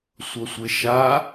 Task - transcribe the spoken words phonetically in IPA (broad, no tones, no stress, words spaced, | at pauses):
sʷʌsʷeʃa